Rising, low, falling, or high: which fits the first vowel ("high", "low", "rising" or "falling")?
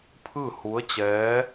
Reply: falling